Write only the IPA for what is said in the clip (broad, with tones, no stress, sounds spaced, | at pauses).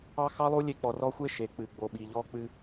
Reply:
ɑ˦ x ɑ˦ lˠ u˦ lʲ e˦ k͡p ɔ˨ r ɔ˦ xʷ e˦ ʃ e˨ k͡p ɨ˨ ɡ͡b o˨ ɓ i˨ ʎ ɔ˦ k͡p ɨ˦